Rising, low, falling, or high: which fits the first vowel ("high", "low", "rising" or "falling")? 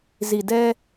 low